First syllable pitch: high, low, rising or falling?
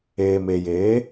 low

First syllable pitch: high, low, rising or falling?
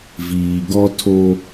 low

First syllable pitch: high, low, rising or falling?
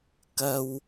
high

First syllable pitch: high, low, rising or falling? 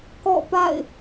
falling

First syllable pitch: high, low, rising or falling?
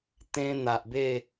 high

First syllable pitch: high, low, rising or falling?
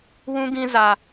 high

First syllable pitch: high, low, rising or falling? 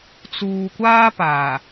low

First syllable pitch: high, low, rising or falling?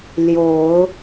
rising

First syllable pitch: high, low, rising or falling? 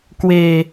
low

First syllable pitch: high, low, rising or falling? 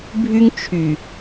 high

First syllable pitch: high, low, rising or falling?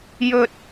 low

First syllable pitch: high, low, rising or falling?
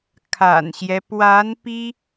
low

